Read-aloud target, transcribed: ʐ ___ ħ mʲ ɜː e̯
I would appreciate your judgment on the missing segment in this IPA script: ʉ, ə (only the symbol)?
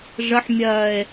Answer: ə